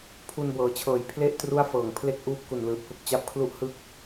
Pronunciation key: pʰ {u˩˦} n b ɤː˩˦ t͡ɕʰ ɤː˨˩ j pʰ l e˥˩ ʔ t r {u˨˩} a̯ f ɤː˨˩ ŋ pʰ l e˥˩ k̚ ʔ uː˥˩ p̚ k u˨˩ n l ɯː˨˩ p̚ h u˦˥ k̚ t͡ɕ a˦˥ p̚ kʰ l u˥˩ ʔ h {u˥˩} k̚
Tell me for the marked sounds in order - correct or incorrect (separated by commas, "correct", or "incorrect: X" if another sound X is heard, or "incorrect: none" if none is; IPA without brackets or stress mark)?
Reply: incorrect: u˧, incorrect: u˥˩, incorrect: ɯ˥˩